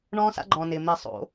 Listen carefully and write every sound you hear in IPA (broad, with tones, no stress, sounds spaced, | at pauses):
ɳ ɔ̃ː˦ s a̰˦ ɡ͡ǃ ɔ̃ː˩ n ɪː˩ m ɪː˧˩ sˤ o̰˧˩˧